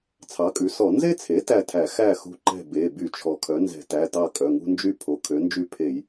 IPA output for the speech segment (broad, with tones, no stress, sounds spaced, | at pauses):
t͡sʰ ɑ˩˥ kʼ ʉ˩˥ s ɔ˧˩˧ n z e˦ t͡sʰ e˩˥ t æ˥˨ tʰ æ˧˩˧ x æ˥˨ x ṳ˦ ǃ ɛ̤˥˨ b e˩˧˩ b y˧˩˧ t͡ʃʰ ɔ˩ kʰ œ˩˥ n z ɛ̤˧˩˧ t æ˩˧˩ t ɑ˥˨ kʼ œ˩˧˩ ŋ ṳ˦ n d͡ʒ y˥˨ pʰ o˩˥ kʰ ø˩˥ n d͡ʒ y˥˨ pʰ e˧˩˧ j